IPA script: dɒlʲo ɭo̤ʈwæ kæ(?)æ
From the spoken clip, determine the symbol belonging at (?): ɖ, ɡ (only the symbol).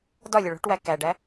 ɖ